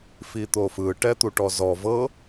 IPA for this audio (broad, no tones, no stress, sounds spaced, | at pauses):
f i t̪ o f ɯ ʈ ɛ t̪ u ʈ ɔ z ɔ v ɤ